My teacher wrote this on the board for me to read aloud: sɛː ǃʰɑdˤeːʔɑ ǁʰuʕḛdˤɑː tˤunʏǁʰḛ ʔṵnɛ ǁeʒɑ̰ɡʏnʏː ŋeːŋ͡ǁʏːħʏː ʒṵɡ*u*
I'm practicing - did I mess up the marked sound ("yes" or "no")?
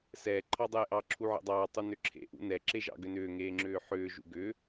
yes